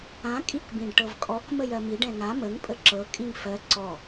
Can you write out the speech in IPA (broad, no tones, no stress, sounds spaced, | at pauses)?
ã kʼ i k b ĩ ɖ ʈ ɤ v kʼ ɔ k m ə j ɜ m i ɖ ɛ̃ ŋ a m ə ŋ pʼ ə ǁ ɤ kʼ ĩ ŋ f ɜ ǀ ɔ